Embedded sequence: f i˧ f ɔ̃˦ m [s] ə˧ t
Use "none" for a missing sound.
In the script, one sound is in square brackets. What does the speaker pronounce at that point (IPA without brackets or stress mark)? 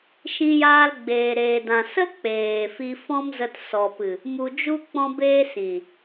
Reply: z